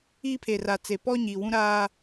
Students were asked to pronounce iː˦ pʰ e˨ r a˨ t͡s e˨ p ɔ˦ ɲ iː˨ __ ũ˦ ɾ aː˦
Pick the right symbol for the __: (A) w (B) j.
A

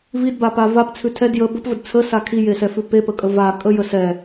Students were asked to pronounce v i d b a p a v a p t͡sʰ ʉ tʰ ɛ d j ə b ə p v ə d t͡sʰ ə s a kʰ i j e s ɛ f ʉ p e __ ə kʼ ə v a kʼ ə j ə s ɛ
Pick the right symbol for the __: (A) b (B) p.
B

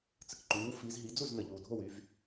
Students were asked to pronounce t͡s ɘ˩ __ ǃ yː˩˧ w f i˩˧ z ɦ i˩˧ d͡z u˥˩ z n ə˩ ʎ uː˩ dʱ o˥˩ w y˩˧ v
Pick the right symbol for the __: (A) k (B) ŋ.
A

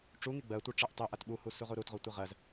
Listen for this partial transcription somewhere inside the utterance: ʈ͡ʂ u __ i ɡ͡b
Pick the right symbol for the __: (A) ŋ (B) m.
A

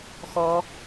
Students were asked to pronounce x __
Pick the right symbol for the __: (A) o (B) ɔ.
B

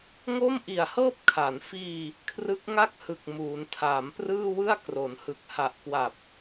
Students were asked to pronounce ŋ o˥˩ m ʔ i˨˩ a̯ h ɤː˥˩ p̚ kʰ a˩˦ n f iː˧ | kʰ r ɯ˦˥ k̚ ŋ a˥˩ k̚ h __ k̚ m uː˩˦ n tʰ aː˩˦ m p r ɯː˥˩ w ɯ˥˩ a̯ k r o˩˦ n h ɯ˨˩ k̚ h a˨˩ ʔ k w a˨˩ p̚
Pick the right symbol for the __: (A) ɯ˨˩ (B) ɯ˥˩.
A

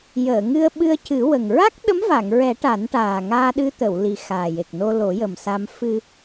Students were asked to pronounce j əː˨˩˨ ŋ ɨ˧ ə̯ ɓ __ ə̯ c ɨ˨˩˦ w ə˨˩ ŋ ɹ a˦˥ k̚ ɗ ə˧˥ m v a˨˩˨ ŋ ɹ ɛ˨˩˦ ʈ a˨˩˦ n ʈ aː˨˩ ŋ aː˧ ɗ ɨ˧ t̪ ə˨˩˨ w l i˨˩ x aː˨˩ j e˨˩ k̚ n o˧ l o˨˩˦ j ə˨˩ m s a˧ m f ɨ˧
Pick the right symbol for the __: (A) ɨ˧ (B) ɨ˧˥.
A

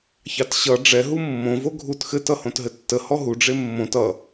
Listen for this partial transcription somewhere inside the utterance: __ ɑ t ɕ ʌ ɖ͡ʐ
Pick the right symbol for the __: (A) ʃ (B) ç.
B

